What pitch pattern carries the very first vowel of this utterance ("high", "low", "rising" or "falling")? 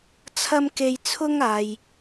high